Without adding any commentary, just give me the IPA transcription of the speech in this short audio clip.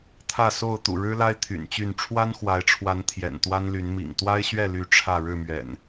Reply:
t̪ʰ ä˥˨ s o˥˨ ʊ̯ t̪ ṵ˨˩ ɻ ɻ̩˦ l a˦ ɪ̯ t̪ʰ y̰˨˩ n t͡ɕ y˥˨ n ʈ͡ʂʰ w a˦ n x w a˨˦ ɪ̯ ʈ͡ʂʰ w a˨˦ n t̪ʰ j ɛ̰˨˩ n t̪ w a˦ n l y˨˦ n m ḭ˨˩ ŋ t̪ w a˦ ɪ̯ ɕ ɥ ɛ˥˨ l y˨˦ ʈ͡ʂʰ ä˥˨ ɻ ɻ̩˥˨ m ɥ ɛ̰˨˩ n

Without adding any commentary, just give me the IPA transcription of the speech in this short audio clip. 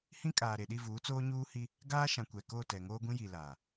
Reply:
h ĩ˦ kʼ aː˨ ɾ e˨ ɗ i˦˨ v uː˨˦ t͡s oː˦ ɲ uː˦ h i˦ | ɡ aː˦ ʃ ã˨ kʷ ɛ˨ k o˦˨ t ɛ˨ ŋ oː˦ ɡʷ ĩ˦ j i˨ l aː˨

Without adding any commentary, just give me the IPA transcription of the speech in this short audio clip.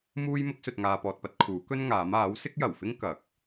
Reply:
m uː˥ j m ʊ˥ k̚ s ɵ˨ t̚ ŋ aː˨ p ɔː˨ t̚ p ɐ˨˥ t̚ kʰ uː˨˥ k ɵ˥ n ŋ aː˨˥ m aː˨˥ w s ɪ˥ k̚ j ɐ˨˩ w f ɪ˥ ŋ k ɐ˨˥ k̚

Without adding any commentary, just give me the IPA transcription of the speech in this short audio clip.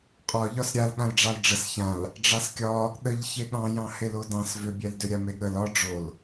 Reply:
qʼ ɒ ʎ ɒ s ɾʲ a l ɠ ã l ɖ͡ʐ ɑ l ɖ͡ʐ ə s ç ã l | ɖ͡ʐ ɑ s kʲ ɒ | ɗ ə ʎ ç e ɠ ɑ̃ j ɑ̃ h e l o d ɑ̃ s v ʏ bʲ ɛ l d ʏ ɾʲ a m e ɠ ə l ɒ ɖ͡ʐ o l

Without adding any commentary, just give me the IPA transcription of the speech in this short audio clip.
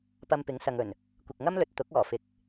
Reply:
p ɐ˧ m p ɪ˨˥ ŋ s ɐ˨ ŋ ɵ˨˩ n | kʷ ɪ˨ k̚ ŋ ɐ˥ m l ɵ˨ t̚ t̪ ʊ˨˥ k̚ ɔː˨˩ f ɪ˨ k̚

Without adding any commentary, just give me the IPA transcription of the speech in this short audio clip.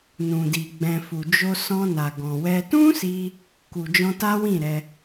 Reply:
n ũ˨ d i˨ ɡ͡b ɛ̃˨ f u˨ d͡ʒ o˧ s ɔ̃˧ n a˨ ɡ ɔ̃˨ w ɛ˧ t ũ˦ s i˧ | k u˨ d͡ʒ ɔ̃˧ t a˦ w ĩ˦˨ ɾ ɛ˧

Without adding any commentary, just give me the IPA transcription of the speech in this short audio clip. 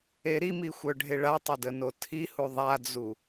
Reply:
e ɾ i m i xʷ œ ɖʱ e ɭ a tˤ ə d ə n o tʰ i h u ðˤ a d͡z u

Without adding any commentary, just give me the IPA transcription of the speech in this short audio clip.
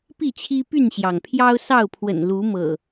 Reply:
p i˥˨ t͡ɕʰ i˦ p y˥˨ n ɕ j ɑ˩ ŋ pʰ j ɑ˦ ʊ̯ s ɑ˥˨ ʊ̯ pʰ w ə̰˨˩ n l u˨˦ m ɤ̰˨˩

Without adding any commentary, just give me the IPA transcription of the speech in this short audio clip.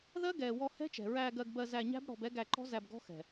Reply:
ð ɜ˦ ɡ ɛː˨ w ɔ˧ h ɛ̤˦ t͡ʃ ɛ̤˨ ɹ æː˧ ɡ ɜ˧ ɡ b ɜ˧ z æ˧ ɲ æ̤˦ b ɽ ɔ̤˧ b ɛ˦ ɡ æ˧ ǃ ɔ̤˦ z æ˧ b ɡ ɔ̤˦ x ɛ̤˨

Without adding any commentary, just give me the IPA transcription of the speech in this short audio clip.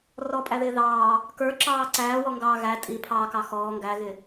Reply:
r ɔ pʼ æ ð ɪː ð ɑː | k ə˞ ǁ ɑː ǀ æː w ɔ ŋ ɡ ɑː ɣ æ tʼ i pʰ ɑː k ɑ x ɔː ŋ ɡ æ ɣ ɪ

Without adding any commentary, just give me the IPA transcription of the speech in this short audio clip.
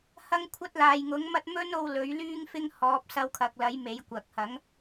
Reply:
h ɐ˥ ŋ kʷʰ ɐ˥ t̚ l aː˨ j ŋ ʊ˨˥ ŋ m ɐ˥ t̚ m ɵ˥ n o˧ w l ɵ˨˥ ɥ l yː˥ ŋ f ɪ˥ ŋ h ɔː˨˥ p̚ s ɐ˧ w kʰ ɐ˨ k̚ l ɐ˨˥ j m e˨˥ j kʷ ɐ˨ k̚ h ɐ˨˥ ŋ

